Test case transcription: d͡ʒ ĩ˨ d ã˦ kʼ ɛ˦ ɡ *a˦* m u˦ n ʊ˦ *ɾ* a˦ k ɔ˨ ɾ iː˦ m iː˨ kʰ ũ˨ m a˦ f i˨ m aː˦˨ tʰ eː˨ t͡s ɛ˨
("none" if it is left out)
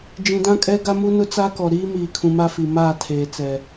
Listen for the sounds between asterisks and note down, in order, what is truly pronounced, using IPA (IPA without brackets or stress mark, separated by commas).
a˦, t͡s